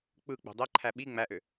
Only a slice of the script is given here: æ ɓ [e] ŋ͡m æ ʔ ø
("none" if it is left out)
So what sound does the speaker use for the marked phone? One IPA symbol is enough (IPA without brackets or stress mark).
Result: i